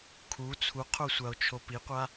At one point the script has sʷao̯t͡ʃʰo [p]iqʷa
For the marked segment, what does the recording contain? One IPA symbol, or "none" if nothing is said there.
p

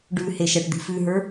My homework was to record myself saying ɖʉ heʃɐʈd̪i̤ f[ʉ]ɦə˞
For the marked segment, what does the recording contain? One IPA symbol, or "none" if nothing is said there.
ʉ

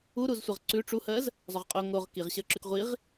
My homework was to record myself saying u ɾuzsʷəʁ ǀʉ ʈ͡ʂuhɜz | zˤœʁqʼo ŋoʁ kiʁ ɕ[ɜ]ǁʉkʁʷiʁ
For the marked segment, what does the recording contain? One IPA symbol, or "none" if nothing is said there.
ɜ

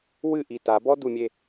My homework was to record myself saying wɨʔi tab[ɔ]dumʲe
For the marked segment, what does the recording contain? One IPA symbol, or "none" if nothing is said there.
ɔ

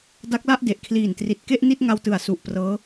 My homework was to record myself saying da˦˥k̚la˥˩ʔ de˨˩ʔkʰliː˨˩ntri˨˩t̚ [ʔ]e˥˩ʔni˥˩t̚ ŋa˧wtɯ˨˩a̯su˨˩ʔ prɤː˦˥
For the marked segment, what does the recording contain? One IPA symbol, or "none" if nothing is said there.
k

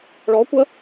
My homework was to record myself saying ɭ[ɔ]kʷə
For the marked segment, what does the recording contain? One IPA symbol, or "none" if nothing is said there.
ɔ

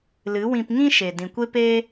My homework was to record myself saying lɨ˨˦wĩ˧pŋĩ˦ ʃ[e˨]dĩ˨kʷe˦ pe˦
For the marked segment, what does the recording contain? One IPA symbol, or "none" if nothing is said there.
e˨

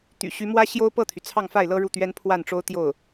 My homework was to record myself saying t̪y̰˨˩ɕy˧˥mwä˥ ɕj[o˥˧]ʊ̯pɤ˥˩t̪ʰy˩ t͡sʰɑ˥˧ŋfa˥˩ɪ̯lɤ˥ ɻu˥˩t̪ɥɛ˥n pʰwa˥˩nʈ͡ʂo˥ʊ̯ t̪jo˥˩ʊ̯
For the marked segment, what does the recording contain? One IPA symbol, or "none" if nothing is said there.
o˥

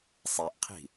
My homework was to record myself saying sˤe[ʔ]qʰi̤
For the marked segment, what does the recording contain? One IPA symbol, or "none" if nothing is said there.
ʔ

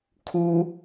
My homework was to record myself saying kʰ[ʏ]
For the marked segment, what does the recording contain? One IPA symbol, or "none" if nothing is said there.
u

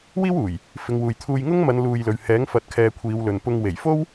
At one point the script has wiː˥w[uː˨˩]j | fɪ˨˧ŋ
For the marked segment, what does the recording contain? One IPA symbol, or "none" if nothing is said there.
uː˨˩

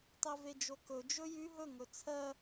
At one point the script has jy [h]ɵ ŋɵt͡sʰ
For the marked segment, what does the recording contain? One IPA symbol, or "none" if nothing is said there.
ɦ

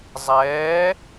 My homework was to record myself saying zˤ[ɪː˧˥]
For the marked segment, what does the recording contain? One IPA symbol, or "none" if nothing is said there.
ɛː˧˥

